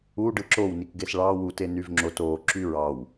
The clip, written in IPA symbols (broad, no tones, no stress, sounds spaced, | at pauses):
u ɖ ɯ ǁ o w n i k ɡ e s ɭ ɑ w u t e n y v ŋ͡ǁ o t o ǁ y ɹ ɑ w